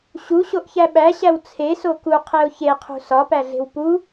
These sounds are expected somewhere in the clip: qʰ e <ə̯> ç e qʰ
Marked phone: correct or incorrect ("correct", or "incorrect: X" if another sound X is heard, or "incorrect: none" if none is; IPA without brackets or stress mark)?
incorrect: ʊ̯